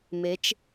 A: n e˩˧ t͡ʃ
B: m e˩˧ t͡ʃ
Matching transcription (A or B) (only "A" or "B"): B